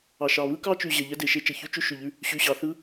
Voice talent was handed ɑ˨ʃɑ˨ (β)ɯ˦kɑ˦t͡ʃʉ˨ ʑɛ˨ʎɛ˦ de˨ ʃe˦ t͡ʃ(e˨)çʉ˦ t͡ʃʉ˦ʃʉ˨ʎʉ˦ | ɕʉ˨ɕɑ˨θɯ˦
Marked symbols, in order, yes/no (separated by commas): yes, no